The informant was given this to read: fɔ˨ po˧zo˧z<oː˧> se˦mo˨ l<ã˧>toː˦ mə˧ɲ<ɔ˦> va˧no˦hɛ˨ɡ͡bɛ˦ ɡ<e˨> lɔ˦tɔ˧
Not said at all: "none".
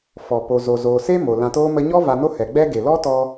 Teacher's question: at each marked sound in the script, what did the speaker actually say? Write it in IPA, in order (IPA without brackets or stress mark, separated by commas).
oː˧, ã˧, ɔ˦, e˨